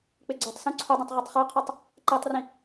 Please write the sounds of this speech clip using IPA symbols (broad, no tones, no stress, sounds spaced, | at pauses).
k͡p ɪ ɡ͡ǀ o tˤ s ũ ǀʰ ʊ dˤ ĩ tˤ ʁ ɔ tˤ χ a qʰ ɔ tˤ | ǃ ɛ tˤ r ĩ